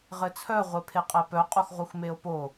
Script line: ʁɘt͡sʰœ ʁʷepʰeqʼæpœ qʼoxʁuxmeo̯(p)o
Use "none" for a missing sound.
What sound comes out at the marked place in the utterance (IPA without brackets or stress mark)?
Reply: p